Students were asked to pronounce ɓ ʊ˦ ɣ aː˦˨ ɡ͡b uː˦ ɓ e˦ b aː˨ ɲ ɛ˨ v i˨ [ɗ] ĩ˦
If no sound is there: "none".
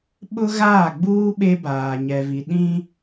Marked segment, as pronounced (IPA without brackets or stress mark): ɗ